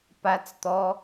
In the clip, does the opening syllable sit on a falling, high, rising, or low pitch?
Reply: high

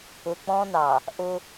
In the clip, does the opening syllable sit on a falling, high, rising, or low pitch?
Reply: low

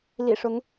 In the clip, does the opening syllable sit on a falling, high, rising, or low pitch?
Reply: low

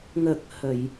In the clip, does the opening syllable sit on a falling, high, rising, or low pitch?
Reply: low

